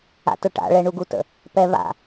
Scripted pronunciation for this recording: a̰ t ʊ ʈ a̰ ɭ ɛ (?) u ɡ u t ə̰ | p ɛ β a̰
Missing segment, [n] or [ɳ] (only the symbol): ɳ